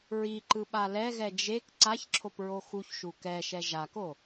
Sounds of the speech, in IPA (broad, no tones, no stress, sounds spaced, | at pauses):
ɹ i ǃ ɯ ɓ a l ɛ ɣ ɛ d͡ʒ e k ǀ a ç ǁʰ o p ɹ o x u ç ʃ u k ɛ ʃ ɛ ʒ a k o